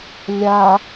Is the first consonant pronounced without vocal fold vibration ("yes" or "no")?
no